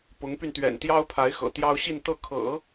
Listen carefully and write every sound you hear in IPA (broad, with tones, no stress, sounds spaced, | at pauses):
p ʊ˧˥ ŋ p y˧ n t̪ ɥ ɛ̰˨˩ n t̪ j ɑ˥ ʊ̯ pʰ a˧˥ ɪ̯ x ɤ̰˨˩ t̪ j ɑ˥ ʊ̯ ɕ i˥˧ n t̪ ɤ˥˩ kʰ ɤ̰˨˩˦